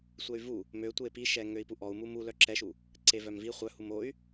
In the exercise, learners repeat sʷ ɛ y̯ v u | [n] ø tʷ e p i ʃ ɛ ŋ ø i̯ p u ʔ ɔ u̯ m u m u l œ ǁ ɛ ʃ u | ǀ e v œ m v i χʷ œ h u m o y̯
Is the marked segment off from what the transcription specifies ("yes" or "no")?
yes